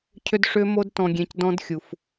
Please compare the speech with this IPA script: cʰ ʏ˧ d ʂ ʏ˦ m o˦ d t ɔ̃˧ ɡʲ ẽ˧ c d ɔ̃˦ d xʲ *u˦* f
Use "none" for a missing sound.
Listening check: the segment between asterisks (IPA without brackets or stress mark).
u˧